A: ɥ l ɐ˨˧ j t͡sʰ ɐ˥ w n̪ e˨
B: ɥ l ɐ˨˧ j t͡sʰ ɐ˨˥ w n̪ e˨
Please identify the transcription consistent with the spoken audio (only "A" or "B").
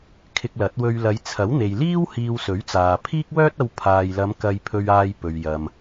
B